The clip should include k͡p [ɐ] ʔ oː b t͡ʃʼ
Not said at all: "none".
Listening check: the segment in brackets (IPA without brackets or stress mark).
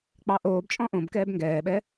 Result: ɑ